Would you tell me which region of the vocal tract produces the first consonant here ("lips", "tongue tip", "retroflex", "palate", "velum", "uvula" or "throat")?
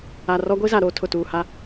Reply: tongue tip